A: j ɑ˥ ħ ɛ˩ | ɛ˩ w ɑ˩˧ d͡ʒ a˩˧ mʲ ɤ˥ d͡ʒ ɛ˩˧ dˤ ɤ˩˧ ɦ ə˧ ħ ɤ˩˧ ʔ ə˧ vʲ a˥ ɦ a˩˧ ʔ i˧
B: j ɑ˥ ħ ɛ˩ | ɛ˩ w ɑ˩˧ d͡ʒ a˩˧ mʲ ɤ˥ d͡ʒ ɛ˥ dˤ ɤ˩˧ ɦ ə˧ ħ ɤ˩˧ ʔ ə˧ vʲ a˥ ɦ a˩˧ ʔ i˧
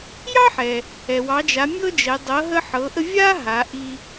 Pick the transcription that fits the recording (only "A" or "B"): A